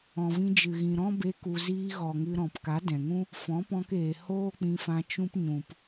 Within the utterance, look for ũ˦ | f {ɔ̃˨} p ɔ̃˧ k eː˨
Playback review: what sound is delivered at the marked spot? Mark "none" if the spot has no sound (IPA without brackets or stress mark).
ɔ̃˨˦